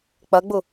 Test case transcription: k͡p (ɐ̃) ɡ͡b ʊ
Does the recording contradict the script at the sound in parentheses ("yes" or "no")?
yes